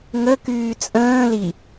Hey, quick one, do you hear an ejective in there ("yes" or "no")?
yes